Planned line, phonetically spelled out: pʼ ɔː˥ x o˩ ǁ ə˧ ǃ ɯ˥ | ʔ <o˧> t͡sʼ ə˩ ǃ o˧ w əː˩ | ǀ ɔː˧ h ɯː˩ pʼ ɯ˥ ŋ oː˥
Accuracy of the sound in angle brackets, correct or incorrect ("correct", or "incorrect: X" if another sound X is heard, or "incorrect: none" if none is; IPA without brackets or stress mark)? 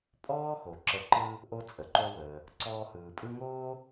correct